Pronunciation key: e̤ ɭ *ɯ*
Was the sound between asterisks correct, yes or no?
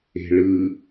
yes